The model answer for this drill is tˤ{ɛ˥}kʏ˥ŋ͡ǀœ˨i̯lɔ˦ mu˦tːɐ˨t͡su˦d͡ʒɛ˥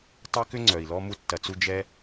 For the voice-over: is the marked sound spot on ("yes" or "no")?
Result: yes